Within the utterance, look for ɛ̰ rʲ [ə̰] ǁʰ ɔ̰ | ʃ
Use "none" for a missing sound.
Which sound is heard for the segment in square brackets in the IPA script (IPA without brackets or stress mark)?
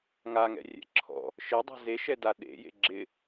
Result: ɛ̰